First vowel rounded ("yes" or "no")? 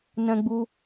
no